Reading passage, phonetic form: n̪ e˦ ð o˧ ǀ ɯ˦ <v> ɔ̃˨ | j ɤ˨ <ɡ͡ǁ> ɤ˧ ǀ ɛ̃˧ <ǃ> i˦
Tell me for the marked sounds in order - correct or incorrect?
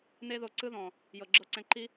incorrect: ð, correct, correct

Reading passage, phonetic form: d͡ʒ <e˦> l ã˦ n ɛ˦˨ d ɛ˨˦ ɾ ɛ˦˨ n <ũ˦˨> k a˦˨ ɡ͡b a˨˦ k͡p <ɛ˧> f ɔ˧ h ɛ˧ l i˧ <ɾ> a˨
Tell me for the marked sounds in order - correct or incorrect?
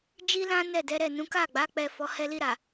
incorrect: i˦, incorrect: ũ˨˦, correct, correct

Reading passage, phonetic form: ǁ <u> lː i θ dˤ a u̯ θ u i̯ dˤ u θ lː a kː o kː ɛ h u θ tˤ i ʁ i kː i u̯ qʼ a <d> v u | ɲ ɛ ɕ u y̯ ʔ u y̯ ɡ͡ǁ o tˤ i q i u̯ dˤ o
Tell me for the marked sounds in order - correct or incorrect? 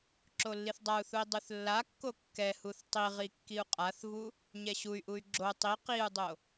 incorrect: o, incorrect: θ

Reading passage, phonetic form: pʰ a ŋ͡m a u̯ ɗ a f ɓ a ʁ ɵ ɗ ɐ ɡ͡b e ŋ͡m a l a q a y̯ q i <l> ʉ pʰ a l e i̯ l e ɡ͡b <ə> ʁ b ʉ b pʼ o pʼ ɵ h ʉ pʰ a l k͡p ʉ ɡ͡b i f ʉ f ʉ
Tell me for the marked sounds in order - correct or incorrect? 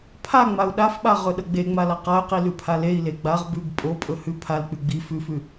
correct, incorrect: a

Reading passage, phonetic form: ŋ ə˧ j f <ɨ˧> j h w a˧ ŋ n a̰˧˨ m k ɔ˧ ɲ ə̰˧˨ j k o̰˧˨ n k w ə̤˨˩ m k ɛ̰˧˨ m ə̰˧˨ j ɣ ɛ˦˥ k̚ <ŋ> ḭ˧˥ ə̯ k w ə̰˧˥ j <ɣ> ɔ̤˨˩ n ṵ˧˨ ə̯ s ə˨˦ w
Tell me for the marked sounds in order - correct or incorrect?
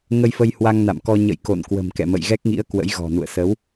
incorrect: ə˧, correct, correct

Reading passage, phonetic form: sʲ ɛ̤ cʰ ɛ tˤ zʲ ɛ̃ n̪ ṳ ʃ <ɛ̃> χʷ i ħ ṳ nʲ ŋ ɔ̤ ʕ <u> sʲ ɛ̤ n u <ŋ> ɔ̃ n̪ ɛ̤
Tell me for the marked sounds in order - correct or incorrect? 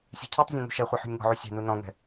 incorrect: ɛ, correct, incorrect: n

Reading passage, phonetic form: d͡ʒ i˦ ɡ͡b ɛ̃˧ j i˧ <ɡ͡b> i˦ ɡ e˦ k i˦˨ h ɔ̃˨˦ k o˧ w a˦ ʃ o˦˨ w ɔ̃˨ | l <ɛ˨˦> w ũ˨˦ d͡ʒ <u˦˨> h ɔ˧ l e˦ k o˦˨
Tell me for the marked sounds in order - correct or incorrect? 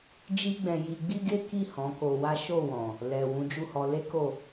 correct, incorrect: ɛ˨, correct

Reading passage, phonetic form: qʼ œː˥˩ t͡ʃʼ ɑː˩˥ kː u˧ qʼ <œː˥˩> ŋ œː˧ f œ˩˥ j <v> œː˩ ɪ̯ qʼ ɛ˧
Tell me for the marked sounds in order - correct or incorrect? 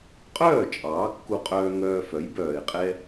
incorrect: œː˧, incorrect: b

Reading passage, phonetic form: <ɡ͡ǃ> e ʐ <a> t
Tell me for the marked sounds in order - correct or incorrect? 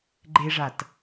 correct, correct

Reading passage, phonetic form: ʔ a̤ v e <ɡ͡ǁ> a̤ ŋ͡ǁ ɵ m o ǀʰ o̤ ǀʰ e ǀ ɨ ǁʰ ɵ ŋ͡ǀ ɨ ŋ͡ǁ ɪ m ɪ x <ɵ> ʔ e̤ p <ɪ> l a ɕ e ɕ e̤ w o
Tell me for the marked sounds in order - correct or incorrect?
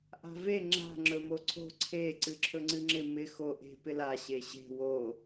incorrect: ŋ͡ǁ, incorrect: o, correct

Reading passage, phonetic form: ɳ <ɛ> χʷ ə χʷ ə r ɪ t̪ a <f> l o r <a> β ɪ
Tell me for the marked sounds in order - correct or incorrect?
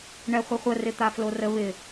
correct, correct, incorrect: ə

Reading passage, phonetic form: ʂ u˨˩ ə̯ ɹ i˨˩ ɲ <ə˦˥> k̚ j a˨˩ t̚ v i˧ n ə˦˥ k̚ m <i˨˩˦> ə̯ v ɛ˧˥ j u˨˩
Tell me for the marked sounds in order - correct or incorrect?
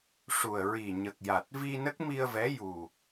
incorrect: ə˨˩, incorrect: i˧

